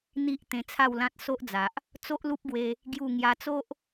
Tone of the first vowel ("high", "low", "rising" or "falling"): high